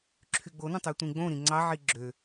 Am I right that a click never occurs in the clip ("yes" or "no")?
no